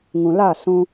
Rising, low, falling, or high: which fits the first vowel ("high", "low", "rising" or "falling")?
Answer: low